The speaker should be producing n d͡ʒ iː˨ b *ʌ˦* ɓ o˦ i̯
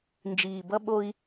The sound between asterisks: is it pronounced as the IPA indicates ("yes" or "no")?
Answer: yes